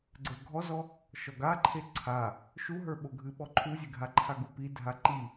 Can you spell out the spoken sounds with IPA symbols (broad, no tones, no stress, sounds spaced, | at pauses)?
ɡ͡ǀ ə˞ ɡʱ ɔ z ɔ | ʃ ɔ ɡ a ǃʰ e ǀʰ a | ʃ u ɦ ə˞ ɓ o ɡʱ ɨ ɓ ɔ ǃʰ u zʲ e ɡʱ a ǃʰ a ɡ u p i dʱ a ǃ i